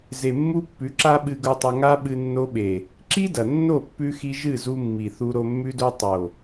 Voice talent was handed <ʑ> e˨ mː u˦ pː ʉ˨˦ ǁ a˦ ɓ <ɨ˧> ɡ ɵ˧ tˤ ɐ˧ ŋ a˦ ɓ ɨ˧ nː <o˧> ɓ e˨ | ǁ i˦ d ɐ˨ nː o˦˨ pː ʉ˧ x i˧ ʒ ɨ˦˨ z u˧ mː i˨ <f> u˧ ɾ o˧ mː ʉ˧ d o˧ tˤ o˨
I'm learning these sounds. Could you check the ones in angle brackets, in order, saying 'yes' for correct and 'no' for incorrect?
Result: no, yes, yes, no

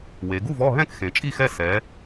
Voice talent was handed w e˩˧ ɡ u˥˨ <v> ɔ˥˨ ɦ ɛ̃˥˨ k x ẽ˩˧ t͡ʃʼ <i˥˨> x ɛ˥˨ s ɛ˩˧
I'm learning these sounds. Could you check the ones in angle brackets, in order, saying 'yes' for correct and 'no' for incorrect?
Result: yes, yes

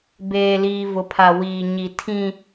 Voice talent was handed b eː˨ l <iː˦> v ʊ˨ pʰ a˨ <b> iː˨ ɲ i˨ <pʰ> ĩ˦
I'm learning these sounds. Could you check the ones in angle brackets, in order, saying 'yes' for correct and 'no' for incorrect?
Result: no, no, no

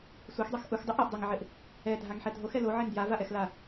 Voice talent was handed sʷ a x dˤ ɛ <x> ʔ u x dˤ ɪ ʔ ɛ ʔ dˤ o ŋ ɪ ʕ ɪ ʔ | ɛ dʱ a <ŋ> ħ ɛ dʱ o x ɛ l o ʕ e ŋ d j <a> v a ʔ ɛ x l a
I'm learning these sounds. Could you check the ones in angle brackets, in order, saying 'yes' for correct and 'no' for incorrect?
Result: yes, yes, yes

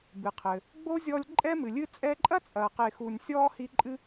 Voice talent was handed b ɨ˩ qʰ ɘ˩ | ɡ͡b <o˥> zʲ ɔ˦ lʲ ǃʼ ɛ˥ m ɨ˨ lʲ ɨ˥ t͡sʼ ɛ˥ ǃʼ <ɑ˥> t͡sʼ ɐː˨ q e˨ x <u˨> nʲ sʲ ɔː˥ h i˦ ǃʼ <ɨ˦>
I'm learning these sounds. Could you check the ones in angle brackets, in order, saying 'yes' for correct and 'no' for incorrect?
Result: yes, no, yes, yes

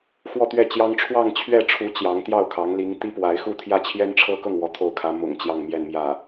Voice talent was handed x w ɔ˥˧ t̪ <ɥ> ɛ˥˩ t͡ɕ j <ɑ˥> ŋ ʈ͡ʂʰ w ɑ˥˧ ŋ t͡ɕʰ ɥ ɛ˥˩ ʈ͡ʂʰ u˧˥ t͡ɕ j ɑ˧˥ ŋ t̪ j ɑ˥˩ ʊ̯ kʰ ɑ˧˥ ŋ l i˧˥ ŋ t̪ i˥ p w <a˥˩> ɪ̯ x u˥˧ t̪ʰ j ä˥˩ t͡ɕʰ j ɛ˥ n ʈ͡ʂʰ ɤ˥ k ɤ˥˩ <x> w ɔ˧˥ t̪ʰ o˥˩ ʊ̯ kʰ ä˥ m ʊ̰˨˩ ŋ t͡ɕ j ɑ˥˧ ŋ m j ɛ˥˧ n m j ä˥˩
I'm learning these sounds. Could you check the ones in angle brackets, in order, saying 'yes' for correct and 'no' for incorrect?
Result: yes, yes, no, no

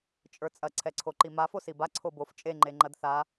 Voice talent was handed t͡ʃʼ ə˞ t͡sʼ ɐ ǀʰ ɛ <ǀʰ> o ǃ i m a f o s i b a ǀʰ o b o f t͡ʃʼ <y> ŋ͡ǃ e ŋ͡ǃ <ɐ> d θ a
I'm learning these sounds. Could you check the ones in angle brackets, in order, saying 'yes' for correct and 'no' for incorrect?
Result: yes, no, yes

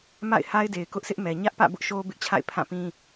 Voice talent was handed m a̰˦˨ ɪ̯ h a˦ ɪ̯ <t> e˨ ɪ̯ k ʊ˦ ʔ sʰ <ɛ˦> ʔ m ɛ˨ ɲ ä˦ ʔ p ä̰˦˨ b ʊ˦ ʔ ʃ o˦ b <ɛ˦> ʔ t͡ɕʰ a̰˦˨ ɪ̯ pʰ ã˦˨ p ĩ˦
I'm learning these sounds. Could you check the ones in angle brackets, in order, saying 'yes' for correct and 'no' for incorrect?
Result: no, no, no

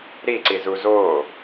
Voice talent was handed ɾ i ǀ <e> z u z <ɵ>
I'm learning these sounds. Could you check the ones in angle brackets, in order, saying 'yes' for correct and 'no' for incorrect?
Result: no, no

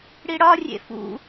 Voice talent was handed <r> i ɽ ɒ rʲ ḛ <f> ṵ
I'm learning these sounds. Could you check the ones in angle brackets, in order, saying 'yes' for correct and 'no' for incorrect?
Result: no, yes

